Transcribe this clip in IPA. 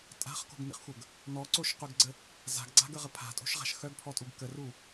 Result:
tʼa̤χko̤ɡnḭχxʷəɡ | nɔǀoʃqœɡɡ͡ǀə | za̤ɡɡ͡ǀa̤ɡəʁə pʰa̤tʼo̤ʃʁa̤ʃ xœɡpʰɔtʼuɡ kəru

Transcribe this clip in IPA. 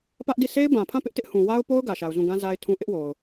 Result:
pä˦ʔdi˦˨ sʰe˦ɪ̯bã˨pʰã˦˨ pɪ˦ʔtɪ˦ʔhũ˨ wa˦ʊ̯po˦ʊ̯ ɡä˨ʃa˨ʊ̯zũ˦˨ ɡã˦ za˦ɪ̯tʰũ˦ ʔɪ˦ʔwo˨ʊ̯

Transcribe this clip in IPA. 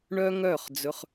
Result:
ɳœ˦ŋœ˦˨χ d͡zɵ˧χ

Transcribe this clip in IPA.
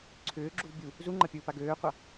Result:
ǀʰʏːɡ͡ǁuv bʲu | zuŋ͡ǃɐpʲʊːpa ɡøːqʷa

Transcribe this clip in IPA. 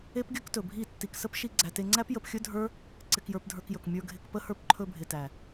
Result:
e˦pɡʲɵ˦ktɵ˨bʱi˦˨ tːi˨ksə˦pʃi˧ ɡ͡ǀæ˨te˧ŋ͡ǀæ˦p jə˧pxʲɵ˦dʱə˞˦ | ǀɪ˧kjə˞˧pdʱə˞˧kjɵ˨k mʲə˞˧ɡʱɪ˧k pə˧hə˞˧p ǃʰɵ˧bʱɪ˨tæ˨

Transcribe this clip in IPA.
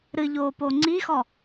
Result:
ɾɨʎoːpo ŋ͡ǀixɔ

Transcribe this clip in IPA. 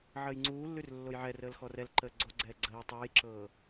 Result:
ʕəːjŋ͡ǀuːlːʉr lːojʕɛrəːl xɔrɛlǃəː ɡ͡ǀoɡ͡ǀɛː ɡ͡ǀəː tˤəːjǁɤː

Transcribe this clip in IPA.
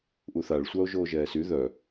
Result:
ʔuθaɭsʷao̯ ʒoːʒɛːsy ðœ

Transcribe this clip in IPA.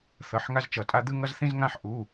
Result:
θʌ˩˧˩ħŋa˦zt͡ʃʌ˨˩˦tʼa˦ d̪ɯ˦ŋʌ˦zθĩ˦zŋã˦ħ ʔu˩˧˩

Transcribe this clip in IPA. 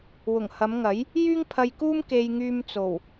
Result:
wʊ˨˩ŋhɐ˨˧m ŋɐ˨˥j | jyː˥ŋpʰɐ˧jkuː˥m ke˧jŋyː˧m t͡so˨˩w

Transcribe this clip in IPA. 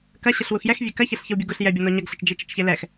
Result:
kɐɕəɬ wuxjɛxvʲe kɐ çɛɬçəwbʲuɡuɬ jɛbʲɔnɔ ɲɐɡɬət͡ʃ d͡ʒit͡ʃət͡ʃçelɛx

